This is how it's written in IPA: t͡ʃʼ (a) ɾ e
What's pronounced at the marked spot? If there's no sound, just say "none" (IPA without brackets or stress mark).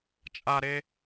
a